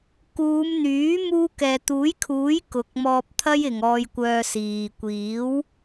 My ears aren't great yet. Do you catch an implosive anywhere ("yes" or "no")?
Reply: no